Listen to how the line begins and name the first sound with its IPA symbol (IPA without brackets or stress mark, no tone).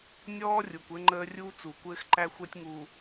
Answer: nʲ